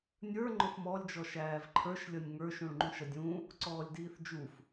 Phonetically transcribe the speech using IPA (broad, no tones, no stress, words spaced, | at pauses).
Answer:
nʲə˞ŋ͡ǃʊf mɔlʲd͡ʒɔ ʃæːvǃʰə˞ʃlʲʌnʲ ŋə˞ʃũɭŋ͡ǃũʃ ʌdʲũ | ǀɔːlʲdiːθd͡ʒuf